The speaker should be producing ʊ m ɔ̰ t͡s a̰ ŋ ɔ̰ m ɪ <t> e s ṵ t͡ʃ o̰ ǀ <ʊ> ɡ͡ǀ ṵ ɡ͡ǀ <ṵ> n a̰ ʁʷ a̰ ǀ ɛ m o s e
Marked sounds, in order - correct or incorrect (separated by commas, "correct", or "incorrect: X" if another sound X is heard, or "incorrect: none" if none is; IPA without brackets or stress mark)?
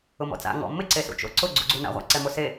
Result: incorrect: ǀ, correct, incorrect: u